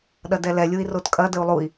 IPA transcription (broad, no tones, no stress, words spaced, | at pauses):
ɗɐdɛlɛlʲui̯ rotkʼɐdəu̯ lˠui̯